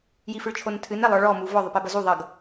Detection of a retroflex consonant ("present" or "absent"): present